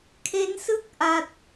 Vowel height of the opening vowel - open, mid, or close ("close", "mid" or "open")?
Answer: mid